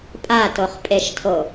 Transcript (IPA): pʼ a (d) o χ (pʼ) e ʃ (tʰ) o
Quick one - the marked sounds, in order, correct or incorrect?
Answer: incorrect: t, correct, correct

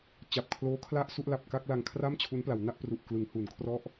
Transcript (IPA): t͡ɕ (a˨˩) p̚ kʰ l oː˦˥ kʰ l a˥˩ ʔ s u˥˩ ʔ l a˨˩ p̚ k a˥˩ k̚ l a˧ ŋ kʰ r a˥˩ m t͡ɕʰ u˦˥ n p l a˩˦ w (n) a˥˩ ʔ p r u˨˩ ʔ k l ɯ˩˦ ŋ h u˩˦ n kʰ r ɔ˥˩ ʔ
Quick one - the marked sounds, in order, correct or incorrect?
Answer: correct, correct

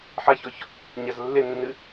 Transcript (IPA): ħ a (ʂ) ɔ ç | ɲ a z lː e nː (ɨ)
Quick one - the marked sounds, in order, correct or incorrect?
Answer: incorrect: ç, correct

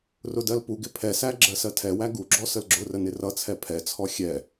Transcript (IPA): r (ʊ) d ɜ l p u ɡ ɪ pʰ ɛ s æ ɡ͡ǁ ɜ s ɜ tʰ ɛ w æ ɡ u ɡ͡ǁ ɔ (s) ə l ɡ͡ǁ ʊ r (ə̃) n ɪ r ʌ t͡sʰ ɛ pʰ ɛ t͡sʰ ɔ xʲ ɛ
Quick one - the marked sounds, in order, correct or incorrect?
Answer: correct, correct, incorrect: ə

